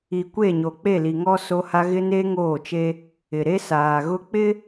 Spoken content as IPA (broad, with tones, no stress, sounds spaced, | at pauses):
i˨ kʷ e˦˨ ɲ o˨ k͡p e˦˨ l i˨ ŋ ɔ˦ s o˦ h a˦ ɣ ɪ˦ n e˦ ŋ oː˦˨ t͡ʃ e˦ | ɪ˨ ɾ e˦ s aː˨ ɣ ʊ˦ k͡p ɪ˦